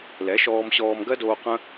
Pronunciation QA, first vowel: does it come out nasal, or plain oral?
oral